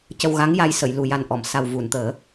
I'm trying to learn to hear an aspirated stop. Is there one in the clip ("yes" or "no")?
no